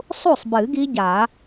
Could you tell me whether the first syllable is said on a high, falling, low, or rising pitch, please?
falling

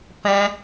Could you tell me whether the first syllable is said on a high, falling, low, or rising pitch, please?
high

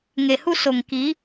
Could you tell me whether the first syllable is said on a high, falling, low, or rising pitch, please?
low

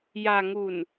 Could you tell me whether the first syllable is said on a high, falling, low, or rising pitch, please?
low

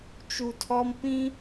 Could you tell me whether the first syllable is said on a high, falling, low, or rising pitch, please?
low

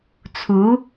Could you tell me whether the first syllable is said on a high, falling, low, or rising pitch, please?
rising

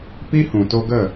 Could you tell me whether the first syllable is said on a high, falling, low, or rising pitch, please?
high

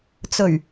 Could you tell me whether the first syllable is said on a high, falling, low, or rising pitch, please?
low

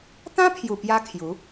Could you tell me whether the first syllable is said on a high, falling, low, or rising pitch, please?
high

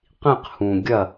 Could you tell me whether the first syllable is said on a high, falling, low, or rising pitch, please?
falling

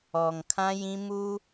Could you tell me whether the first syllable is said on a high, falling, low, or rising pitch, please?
low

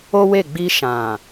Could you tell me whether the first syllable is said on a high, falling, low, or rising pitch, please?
high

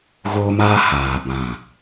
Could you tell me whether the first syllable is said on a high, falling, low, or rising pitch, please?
high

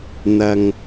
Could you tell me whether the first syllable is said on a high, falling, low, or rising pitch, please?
low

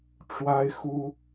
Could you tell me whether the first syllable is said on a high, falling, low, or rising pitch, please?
high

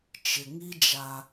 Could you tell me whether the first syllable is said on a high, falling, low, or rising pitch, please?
low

